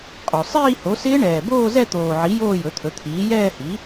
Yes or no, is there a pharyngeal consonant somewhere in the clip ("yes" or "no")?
yes